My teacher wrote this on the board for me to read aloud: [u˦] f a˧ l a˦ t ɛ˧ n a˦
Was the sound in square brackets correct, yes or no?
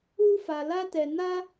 yes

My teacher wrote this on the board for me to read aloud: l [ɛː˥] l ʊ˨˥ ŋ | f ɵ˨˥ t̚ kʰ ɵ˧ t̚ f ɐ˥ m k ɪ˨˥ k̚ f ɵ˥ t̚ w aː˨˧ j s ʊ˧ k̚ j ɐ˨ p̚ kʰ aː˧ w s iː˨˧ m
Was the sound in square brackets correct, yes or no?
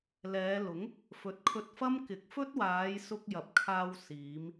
no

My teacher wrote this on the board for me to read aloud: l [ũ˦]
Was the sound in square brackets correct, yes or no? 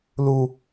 no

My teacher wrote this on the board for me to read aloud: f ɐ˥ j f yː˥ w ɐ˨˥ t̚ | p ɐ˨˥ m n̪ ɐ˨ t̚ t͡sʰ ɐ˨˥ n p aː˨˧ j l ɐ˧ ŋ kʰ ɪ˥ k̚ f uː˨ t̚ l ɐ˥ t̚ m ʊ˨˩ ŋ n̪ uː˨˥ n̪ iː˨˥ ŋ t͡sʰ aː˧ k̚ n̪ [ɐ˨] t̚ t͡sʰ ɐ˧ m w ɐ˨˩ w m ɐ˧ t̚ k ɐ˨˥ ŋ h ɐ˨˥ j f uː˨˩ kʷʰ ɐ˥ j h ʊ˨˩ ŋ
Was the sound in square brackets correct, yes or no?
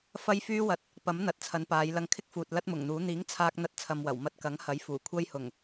no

